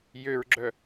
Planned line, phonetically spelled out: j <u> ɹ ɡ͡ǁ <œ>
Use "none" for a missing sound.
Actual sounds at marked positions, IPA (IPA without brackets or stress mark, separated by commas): ø, œ